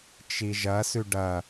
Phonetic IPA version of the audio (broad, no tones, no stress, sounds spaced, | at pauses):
t͡ʃ i ʒ ɐ s ʉ ɖ ɐ